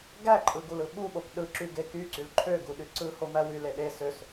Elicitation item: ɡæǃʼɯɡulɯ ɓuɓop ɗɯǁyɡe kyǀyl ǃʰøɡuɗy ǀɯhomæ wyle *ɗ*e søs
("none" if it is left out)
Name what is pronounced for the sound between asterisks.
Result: ɗ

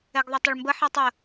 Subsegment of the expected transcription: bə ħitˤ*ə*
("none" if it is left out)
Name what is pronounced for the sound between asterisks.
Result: ə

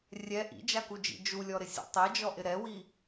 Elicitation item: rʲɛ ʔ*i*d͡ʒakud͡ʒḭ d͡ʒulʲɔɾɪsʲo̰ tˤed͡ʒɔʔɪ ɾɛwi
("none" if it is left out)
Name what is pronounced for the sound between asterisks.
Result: ḭ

